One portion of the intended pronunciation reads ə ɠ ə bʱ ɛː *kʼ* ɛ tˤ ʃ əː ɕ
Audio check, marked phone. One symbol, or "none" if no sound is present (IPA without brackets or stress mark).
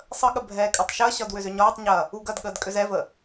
kʼ